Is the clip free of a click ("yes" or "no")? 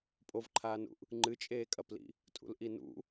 no